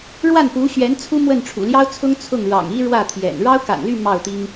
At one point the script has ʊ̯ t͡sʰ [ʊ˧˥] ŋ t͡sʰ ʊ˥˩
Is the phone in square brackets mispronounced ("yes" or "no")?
yes